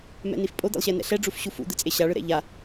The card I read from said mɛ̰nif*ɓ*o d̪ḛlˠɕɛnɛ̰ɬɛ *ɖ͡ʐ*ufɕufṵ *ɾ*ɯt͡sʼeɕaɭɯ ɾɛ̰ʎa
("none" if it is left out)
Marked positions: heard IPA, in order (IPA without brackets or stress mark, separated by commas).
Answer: pʼ, ɖ͡ʐ, d̪